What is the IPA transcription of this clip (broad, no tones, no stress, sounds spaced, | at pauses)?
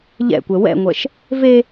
ʎ ɛ̰ kʷ ɛ w ɛ̰ ŋʷ ɛ ʃ | v e